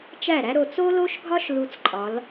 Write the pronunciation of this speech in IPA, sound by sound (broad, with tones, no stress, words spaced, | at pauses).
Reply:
t͡ʃæ˦˨ɾæ˦ ɾo˨t͡so˦lo˦ʃɡʱɒ˦ʃ lu˦t͡sǃʼɒ˨˦l